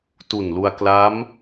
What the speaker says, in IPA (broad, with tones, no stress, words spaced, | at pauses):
tu˨˩nlu˧a̯ kla˦˥m